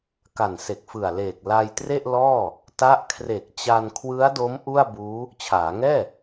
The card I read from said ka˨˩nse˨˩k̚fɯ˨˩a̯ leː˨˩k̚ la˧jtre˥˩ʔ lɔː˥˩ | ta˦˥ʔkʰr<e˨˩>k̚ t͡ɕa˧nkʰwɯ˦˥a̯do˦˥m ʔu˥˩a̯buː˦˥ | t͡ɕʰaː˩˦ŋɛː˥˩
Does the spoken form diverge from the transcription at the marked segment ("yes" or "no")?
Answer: no